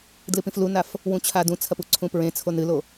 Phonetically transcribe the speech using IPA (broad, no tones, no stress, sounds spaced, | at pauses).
d l ɨ p ĩ f l u n a f | w ũ t͡ɕʰ a d ũ t͡sʰ ɐ p u ǀʰ ũ p ɹ ẽ t͡sʰ o n ɨ l o